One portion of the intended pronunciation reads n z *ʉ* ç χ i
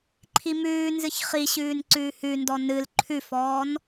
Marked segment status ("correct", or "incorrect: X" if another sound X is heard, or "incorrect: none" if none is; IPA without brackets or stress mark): incorrect: ɨ